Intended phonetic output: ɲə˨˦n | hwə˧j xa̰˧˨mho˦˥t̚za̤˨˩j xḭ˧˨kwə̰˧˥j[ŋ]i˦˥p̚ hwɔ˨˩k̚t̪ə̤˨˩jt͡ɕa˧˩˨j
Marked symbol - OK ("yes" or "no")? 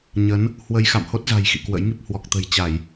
yes